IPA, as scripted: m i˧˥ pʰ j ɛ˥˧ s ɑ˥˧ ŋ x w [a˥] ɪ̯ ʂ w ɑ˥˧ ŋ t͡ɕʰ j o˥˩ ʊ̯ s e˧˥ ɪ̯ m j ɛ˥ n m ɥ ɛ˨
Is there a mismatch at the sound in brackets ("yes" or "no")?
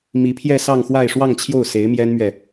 yes